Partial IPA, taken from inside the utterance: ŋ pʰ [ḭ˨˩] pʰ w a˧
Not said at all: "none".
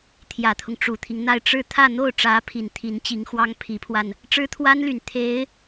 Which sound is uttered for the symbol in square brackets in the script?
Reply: i˧˥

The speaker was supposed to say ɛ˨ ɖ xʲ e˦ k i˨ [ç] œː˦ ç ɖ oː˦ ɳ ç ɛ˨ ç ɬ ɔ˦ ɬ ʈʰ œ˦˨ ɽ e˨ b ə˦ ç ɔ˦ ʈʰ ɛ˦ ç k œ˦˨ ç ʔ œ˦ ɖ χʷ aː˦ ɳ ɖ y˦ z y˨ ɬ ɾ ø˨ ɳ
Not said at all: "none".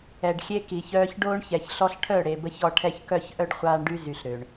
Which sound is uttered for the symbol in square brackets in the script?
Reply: ç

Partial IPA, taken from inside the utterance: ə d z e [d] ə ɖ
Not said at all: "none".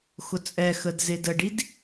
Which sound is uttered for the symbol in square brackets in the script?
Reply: d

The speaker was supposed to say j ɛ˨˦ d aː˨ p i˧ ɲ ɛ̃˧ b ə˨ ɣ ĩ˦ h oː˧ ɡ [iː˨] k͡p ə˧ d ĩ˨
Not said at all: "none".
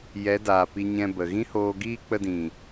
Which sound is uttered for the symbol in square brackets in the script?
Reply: iː˦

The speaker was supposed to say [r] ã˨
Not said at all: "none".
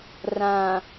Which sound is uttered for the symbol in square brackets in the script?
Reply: r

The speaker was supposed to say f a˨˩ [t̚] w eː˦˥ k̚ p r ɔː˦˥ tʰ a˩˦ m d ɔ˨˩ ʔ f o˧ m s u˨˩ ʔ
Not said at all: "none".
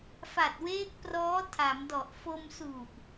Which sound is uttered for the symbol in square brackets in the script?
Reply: t̚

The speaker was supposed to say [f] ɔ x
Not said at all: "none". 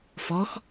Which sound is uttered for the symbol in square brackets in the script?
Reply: f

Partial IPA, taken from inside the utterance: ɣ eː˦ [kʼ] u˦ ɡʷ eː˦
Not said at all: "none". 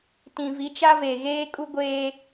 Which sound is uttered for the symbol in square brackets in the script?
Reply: kʼ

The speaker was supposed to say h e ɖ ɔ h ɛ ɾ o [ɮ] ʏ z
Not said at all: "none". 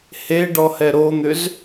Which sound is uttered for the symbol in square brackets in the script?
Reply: n̪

